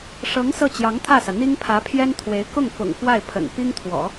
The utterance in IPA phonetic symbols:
ʂɤ˧˥ŋ sɤ˥˩t͡ɕjɑ˧˥ŋt̪ʰä˥˩sä˩ n̪i˥ŋpʰä˧˥pʰjɛ˥nt̪ʰwe˧˥ɪ̯ kʊ˥˩ŋfʊ̰˨˩ŋ fwa˥˩ɪ̯pʰə̰˨˩n pi˥ŋt̪ʰwɔ̰˨˩˦

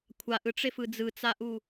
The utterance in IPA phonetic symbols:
kʷʰaʔɯʈ͡ʂefɯ d͡zɯt͡saʔu

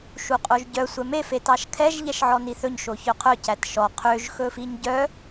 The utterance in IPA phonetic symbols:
ʃuqʼoʒɟœ sʷɛme fetɑʃkʰɛʒ ʎɛʃʕɔniθɵɲ ʃoçœqʰœ cætʃɔ qʰøʒ xɵfiɲɟœ

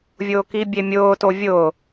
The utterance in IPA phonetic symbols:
vʲʊːkibʲemʲʊː tovʲʊ

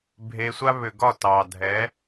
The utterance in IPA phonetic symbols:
bʱe˧sʷa˦ βʏ˨ɡɒ˦˨ tɑ˨dʱɛ˨˦

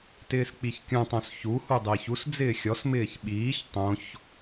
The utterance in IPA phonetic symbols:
tɪːsk͡piçkʲũtˤõs çu hudˤɪːçusd͡zɪː xʲɔsmɪːç ɓiːç tˤõç

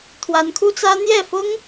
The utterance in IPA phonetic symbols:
t̪ʰwa˧˥nkʰu˥t͡sä˥ n̪jɛ˥˩fʊ˥ŋ

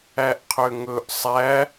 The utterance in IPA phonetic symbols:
æʔqʰøŋɵʔ sˤæ

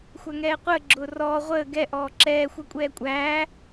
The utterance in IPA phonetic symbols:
xʷæŋɛːqʷəː ɡ͡ǁʊːrɔː ʁʷəː ɡɛ ʔɔːǁɛː xʷɛkʷʼɛːkʷʼæː

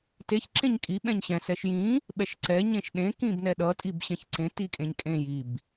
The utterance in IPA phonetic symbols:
teç ǁẽɲkʼi ɓɛ̃ɲɕɛ̃ sɛʃjĩ | ɓɛʃǀɛ ɲẽʃɗẽ kĩbnɛɗʌ tʼibɕɛ̃çǀẽ tikʼẽɲkʼẽj ib

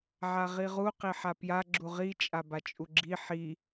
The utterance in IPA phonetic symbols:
ʕaʁiʁu qiħapja ɡ͡ǁuʁi t͡ʃʼabat͡ʃʼuɡ͡ǁi ħi

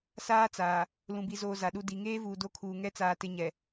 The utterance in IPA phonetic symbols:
saː˦t͡saː˨ | lũ˨bi˨zoː˨ za˨ɗu˦di˨˦ ŋeː˦vuː˨do˦˨kʰuː˨ ŋɛ˦ t͡saː˦tɪ˦ ɲɛ˨

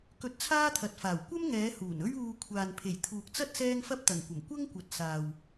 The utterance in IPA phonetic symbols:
kɵ˧t̚t͡sʰaː˥t̪ʰɐ˨t̚faː˨˩w kʷɐ˥m ŋɛː˨˧ huː˨˩nɵ˥ɥuː˧ kʷʰaː˨npʰe˨˩jt̪ʰuː˨k̚t͡sɐ˥t̚ sɛː˥ŋfɐ˥p̚t̪ɐ˨˩ŋkʷɐ˨˩m kʷɐ˥ŋkʷɐ˨t̚ saː˨w

